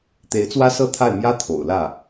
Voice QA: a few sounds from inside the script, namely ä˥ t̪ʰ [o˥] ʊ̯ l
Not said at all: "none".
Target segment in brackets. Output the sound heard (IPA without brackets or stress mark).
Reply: o̰˨˩